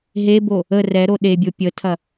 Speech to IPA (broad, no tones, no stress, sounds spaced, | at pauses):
ɦ e b o | ə r ɛ ɾ o ɗ e bʲ o pʲ ə tʰ ɐ